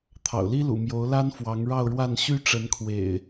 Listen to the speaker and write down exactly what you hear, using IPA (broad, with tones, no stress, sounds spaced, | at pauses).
t̪ʰ ɑ̰˨˩ ʊ̯ l i˦ l ṵ˨˩ m j o˨˦ ʊ̯ l a˦ n f w ɑ˨˦ ŋ ɻ ɑ˥˨ ʊ̯ ɻ w a˥˨ n ɕ y˦ ʈ͡ʂ ə˨˦ n kʰ w ḛ˨˩ ɪ̯